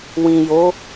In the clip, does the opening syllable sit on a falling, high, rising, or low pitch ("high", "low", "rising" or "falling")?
low